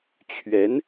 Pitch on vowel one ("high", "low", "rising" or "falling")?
rising